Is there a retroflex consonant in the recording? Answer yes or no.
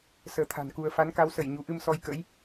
no